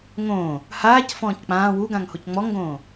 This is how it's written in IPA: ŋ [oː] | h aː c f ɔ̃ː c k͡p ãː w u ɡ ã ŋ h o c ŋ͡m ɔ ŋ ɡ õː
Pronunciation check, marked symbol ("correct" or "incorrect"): incorrect